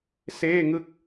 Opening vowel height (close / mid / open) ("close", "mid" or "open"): mid